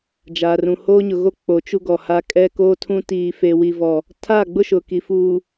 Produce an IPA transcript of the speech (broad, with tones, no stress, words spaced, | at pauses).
d͡ʒaː˨rũ˨ hoː˦ɲʊ˨ɣo˦ k͡po˨˦ t͡ʃu˦ɡɔ˨ha˦ kʼɛ˦ koː˦tʰũ˦ tiː˦ fe˦wi˦vɔ˦ | tʰaː˦˨ɡ͡bʊ˦ ʃʊ˨ki˨fuː˨